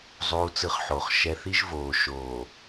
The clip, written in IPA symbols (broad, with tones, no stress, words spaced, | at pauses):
zˤuː˨t͡sɯ˨χ ħo˨χ ʃɛ˨θi˦ʒ voː˨ʃoː˨